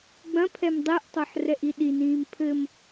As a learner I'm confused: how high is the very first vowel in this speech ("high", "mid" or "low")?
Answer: low